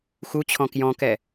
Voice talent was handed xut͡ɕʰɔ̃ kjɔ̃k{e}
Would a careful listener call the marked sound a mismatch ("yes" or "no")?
yes